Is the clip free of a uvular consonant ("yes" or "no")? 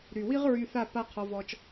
no